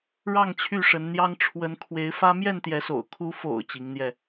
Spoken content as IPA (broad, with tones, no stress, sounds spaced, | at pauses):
ɻ ɑ˥˨ ŋ t͡ɕʰ y˥˨ ʂ ə˨˦ n n̪ j ɑ˦ ŋ ʈ͡ʂʰ w ə˨˦ n kʰ w e˨˦ ɪ̯ f ä˦ m j ɛ˥˨ n t̪ j ɛ˨˦ s o̰˨˩ ʊ̯ kʰ u˨˦ f o̰˨˩ ʊ̯ t͡ɕ i˨˦ ŋ n̪ j ɛ˧